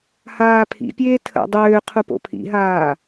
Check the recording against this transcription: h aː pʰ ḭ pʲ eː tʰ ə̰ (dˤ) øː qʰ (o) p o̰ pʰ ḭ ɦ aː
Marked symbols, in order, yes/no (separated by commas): yes, no